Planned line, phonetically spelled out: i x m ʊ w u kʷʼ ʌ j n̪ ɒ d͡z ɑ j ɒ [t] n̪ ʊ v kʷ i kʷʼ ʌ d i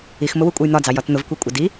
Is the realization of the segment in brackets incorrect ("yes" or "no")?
no